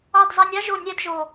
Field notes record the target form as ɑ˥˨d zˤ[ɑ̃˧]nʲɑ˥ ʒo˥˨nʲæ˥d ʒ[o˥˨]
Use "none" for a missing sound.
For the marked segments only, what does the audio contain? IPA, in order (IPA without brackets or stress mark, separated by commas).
ɑ˧, o˨˩